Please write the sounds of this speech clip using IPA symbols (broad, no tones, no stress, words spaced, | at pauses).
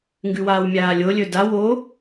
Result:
ŋɡʉwaːwmʲaːlʲo lʲɵda wo